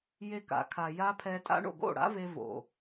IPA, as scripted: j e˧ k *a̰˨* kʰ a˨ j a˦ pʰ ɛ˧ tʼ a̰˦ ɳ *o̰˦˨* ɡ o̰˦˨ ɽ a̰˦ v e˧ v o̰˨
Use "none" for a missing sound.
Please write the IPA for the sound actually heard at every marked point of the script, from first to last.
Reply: a̰˨, o̰˦˨

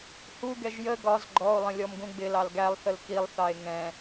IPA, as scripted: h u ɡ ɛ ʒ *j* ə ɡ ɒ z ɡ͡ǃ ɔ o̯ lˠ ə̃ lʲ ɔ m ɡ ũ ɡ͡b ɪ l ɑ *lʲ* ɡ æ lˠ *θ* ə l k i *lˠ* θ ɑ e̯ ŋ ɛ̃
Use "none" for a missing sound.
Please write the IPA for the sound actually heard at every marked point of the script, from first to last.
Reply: j, l, θ, lˠ

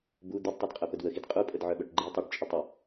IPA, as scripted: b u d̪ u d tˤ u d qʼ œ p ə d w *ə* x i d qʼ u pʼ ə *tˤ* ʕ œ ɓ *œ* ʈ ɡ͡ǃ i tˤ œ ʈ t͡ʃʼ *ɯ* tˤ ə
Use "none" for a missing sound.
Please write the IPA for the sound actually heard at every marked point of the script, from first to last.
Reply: ə, d, œ, ə

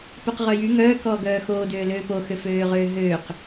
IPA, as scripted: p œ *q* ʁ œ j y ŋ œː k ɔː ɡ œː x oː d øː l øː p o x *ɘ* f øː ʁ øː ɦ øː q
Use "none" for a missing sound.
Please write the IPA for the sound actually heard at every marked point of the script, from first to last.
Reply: q, ø

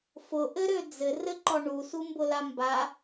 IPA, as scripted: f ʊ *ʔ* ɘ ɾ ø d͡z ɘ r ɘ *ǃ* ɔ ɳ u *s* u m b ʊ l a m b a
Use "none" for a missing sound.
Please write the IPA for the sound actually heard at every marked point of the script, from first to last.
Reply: ʔ, ǃ, s

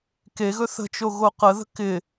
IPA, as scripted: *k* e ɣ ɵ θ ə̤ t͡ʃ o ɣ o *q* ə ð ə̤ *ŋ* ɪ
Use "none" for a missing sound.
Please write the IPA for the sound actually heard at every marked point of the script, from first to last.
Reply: k, q, k

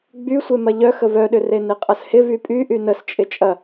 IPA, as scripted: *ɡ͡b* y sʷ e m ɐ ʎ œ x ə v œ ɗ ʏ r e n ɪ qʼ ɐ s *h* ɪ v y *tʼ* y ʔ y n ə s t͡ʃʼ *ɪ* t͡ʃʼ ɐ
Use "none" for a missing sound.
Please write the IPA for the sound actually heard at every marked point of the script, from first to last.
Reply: ɡ͡b, h, pʼ, ɪ

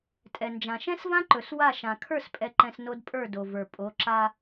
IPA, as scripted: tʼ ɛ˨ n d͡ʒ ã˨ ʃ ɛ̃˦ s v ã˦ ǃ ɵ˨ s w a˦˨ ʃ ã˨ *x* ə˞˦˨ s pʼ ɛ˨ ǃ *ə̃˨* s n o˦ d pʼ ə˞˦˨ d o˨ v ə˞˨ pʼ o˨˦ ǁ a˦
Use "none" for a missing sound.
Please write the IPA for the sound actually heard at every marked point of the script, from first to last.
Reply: kʰ, ɛ̃˨

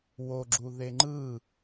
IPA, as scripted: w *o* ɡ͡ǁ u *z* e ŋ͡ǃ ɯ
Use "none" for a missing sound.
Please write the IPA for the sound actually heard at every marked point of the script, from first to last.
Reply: o, ð

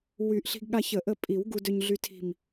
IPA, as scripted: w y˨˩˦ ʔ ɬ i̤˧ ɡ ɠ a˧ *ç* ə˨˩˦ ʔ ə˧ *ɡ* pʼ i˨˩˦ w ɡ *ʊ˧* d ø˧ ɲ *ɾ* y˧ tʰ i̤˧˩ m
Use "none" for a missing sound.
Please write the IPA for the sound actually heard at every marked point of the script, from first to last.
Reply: ç, none, u˧, ɮ

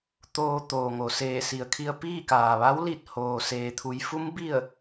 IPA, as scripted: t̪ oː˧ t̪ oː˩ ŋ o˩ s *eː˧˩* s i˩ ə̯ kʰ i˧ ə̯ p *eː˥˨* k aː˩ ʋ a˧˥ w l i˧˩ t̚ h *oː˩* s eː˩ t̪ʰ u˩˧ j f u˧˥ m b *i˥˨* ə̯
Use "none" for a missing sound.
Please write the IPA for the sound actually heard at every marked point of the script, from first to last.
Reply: eː˧˩, iː˥˨, oː˩, i˥˨

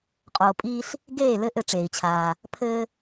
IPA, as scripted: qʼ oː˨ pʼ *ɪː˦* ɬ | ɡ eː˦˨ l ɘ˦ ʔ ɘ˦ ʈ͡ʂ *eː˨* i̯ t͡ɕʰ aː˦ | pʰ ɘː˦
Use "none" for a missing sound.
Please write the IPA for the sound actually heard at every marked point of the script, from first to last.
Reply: iː˦, eː˨

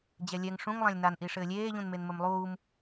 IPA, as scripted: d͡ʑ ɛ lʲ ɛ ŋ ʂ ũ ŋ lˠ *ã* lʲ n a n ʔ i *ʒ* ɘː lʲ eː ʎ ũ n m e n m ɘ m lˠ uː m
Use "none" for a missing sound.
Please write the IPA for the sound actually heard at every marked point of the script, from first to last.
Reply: ã, ʂ

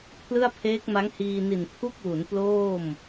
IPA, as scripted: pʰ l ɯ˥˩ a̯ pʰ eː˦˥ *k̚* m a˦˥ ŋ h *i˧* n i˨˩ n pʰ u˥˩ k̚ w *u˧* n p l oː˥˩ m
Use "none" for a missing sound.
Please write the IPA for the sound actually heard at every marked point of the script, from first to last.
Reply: k̚, iː˧, u˩˦

